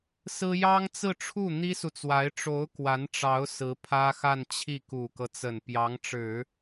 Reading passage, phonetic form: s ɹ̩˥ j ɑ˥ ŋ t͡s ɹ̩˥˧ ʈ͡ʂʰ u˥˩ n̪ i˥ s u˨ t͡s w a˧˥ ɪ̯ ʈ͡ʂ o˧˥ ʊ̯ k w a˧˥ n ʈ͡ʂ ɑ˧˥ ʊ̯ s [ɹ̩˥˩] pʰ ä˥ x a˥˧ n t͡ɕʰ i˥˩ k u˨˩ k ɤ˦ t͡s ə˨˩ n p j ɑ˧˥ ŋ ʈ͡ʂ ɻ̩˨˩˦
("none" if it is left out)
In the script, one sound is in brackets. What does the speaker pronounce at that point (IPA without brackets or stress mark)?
ɹ̩˧˥